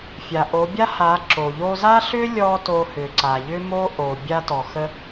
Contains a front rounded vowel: yes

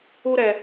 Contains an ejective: no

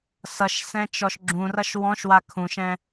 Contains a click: yes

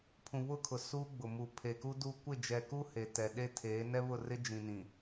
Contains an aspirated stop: yes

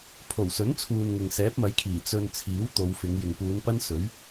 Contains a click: no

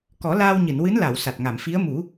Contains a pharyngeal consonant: no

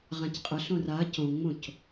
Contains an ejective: yes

